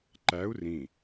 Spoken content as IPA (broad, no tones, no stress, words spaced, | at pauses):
ǃæu̯ rĩ